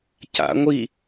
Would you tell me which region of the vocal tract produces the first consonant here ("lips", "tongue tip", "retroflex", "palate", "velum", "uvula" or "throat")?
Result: palate